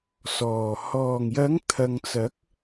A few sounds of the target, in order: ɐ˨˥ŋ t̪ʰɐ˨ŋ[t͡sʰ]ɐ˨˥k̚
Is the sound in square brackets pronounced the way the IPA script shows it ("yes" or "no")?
no